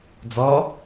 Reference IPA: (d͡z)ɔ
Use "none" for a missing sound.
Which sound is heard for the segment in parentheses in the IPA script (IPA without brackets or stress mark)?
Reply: d͡z